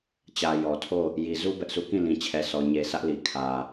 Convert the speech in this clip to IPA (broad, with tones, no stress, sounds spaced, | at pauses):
t͡ɕ ä˨ j ɔ˨ tʰ o˦˨ | j i˨ z u˦ b ɛ˦ ʔ sʰ u˦˨ k ĩ˦˨ l ĩ˨ t͡ɕʰ ɛ˨ sʰ ɔ˨ ɲ e˨ sʰ ä˦ ʔ l i˨ kʰ ä˨